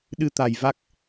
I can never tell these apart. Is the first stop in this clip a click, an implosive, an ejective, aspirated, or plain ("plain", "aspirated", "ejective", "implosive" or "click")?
implosive